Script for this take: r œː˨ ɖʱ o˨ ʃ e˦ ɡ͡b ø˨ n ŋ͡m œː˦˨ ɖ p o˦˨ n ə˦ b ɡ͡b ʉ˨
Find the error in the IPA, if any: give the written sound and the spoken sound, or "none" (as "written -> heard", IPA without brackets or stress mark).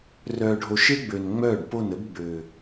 ʉ˨ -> ø˨